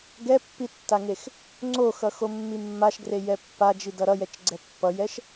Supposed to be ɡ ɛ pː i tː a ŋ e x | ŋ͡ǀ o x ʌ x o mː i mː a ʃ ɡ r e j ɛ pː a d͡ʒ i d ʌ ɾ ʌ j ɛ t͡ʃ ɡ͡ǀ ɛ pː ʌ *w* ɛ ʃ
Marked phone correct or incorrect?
incorrect: j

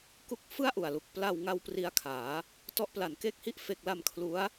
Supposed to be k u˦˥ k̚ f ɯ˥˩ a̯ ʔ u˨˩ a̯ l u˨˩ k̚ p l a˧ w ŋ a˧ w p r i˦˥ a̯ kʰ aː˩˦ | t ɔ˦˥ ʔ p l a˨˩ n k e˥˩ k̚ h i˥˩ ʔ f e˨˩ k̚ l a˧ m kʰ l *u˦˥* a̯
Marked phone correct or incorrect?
correct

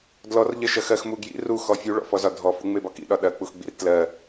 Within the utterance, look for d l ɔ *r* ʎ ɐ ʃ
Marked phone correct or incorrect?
correct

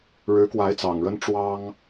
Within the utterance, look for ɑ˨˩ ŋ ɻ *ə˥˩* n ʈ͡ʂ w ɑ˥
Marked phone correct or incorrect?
incorrect: ə˥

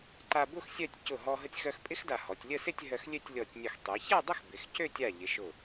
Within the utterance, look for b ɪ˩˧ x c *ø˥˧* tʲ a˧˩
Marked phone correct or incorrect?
correct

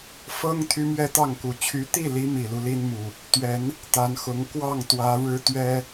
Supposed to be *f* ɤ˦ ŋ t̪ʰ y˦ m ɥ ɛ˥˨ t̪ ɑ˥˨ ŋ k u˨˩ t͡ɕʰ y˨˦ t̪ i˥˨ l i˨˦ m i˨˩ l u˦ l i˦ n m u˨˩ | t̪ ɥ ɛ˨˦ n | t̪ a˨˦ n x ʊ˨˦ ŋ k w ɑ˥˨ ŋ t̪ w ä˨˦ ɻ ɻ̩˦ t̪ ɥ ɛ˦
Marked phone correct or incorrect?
correct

